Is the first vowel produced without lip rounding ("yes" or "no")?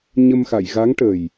yes